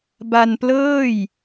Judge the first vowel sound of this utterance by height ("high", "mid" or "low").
low